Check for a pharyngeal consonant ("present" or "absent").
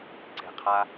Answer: absent